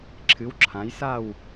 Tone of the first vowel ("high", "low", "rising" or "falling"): rising